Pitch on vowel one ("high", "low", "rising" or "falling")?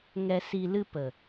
low